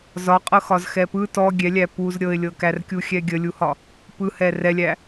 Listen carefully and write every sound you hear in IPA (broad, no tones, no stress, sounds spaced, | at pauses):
z ɒ qʼ ɤ x ɒ z x ɛ p ɯ t ɔ ɡʲ ɛ lʲ æ p u z ɾʲ ɤ ɪ̯ lʲ ɤ k æ r kʲ u xʲ ɛ ɡʲ ə lʲ u h ɒ | p ɯ h ɛ r ɛ lʲ æ